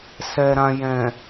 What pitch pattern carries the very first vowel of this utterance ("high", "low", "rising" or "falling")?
low